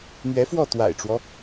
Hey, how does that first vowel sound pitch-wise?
rising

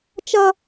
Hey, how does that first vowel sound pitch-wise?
high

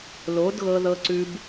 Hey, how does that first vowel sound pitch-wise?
rising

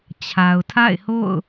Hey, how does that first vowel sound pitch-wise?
low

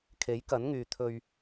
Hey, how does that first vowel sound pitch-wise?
rising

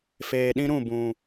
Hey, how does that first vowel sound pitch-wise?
low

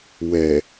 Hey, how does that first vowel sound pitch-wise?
low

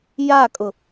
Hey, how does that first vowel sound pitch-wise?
falling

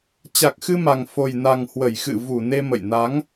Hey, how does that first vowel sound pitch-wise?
low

